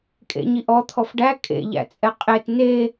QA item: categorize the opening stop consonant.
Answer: ejective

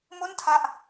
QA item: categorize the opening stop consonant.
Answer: aspirated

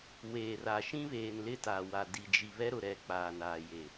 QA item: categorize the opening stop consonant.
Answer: plain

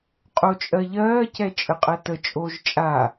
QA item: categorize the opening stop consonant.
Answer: ejective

